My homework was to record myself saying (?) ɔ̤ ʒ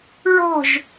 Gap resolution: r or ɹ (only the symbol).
ɹ